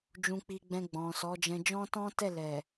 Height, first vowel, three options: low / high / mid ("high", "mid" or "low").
high